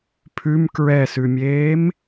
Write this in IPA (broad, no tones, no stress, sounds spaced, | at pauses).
pʰ ʉ m k ɹ ɛ s ʉ mʲ eː m